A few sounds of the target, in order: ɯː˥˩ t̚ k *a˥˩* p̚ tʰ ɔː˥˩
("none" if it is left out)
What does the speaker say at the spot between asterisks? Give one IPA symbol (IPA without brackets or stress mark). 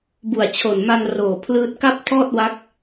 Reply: a˥˩